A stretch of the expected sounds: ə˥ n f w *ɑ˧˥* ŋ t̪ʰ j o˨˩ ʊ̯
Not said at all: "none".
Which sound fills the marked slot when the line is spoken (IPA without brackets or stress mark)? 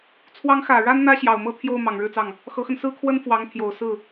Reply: ɑ˧˥